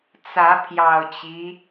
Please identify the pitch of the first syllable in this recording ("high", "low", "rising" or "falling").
rising